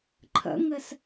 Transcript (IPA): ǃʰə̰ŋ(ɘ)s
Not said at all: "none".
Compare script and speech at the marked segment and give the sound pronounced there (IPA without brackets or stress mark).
ɘ